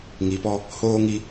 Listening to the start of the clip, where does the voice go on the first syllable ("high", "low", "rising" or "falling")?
low